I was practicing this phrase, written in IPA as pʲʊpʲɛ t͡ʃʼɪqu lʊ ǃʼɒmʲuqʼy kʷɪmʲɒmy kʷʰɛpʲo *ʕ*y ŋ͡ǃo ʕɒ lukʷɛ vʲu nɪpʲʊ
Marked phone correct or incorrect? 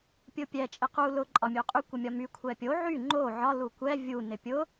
correct